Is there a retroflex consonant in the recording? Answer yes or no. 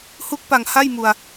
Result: no